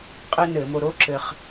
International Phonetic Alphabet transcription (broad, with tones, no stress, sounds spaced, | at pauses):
qʼ ɘː˥ n ɘː˧˩˧ m o˧ ɾ o˥ ǁ ɘ˧ χ